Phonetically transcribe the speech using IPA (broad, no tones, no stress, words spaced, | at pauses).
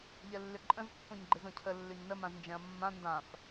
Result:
ʎɛlːʏǃʼə̃z pːõɲɡ͡ǃɪzõcʰə lːʏɲnə mãznd͡ʒɛ̃ɐ̯mːã ndãf